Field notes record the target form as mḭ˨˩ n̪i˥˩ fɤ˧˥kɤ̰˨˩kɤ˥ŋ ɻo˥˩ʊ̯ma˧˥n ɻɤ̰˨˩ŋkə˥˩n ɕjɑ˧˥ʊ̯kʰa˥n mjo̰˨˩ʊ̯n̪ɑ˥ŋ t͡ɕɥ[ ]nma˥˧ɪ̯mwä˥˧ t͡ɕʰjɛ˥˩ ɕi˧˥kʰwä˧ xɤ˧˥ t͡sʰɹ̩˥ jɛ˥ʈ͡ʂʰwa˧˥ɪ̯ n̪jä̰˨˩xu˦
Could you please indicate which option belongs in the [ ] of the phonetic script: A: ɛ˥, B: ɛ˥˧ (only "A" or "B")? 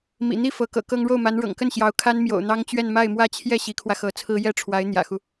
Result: B